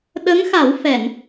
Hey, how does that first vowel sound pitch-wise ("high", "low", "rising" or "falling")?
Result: rising